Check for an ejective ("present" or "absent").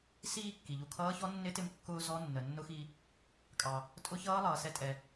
present